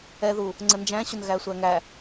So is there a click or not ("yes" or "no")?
yes